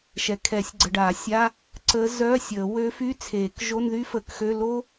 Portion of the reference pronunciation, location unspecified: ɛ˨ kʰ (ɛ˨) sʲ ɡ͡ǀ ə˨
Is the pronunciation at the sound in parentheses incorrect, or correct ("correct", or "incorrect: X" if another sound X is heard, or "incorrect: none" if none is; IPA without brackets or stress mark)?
incorrect: ɛ˨˩˦